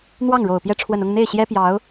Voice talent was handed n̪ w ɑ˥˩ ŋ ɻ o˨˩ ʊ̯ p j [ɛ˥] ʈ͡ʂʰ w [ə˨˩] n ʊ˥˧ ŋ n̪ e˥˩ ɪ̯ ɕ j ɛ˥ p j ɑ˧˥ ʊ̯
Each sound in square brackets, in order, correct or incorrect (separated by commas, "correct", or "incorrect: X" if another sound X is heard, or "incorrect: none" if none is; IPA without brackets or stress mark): incorrect: ɛ˧˥, correct